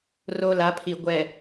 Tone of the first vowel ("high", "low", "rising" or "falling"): high